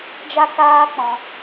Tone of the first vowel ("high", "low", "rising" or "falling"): high